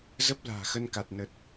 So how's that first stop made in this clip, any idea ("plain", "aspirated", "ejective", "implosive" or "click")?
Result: plain